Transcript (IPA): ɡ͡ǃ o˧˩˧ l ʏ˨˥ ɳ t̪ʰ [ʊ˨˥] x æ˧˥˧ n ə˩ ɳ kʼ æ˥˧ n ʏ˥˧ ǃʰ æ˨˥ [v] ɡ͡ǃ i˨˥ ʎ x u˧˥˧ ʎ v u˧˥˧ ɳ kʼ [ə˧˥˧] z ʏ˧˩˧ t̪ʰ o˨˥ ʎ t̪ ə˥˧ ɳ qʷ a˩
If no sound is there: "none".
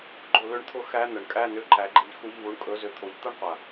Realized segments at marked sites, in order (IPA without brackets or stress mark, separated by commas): ʊ˨˥, none, ɵ˧˥˧